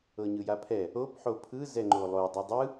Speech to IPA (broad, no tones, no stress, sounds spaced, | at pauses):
ɤ ɲ ɯ j a pʰ ɛ | o p ħ o pʰ ɯ z ɛ ŋ͡ǃ o lˠ o dˤ ɯ dˤ ɯ